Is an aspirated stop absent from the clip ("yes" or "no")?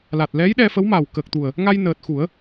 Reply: yes